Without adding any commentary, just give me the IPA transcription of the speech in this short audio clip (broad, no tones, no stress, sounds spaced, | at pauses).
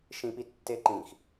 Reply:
ʃ ĩ p i tː e ǃ ĩ x